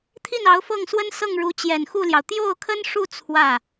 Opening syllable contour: falling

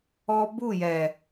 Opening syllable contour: high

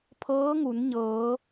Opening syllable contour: rising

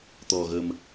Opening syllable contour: low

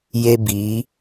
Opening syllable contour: high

